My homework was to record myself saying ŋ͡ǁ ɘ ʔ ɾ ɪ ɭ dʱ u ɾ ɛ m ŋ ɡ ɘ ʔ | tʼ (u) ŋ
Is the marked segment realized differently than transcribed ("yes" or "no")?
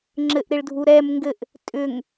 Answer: yes